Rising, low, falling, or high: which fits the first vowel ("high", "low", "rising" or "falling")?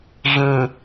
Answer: low